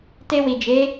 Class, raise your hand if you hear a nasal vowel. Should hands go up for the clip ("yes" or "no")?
no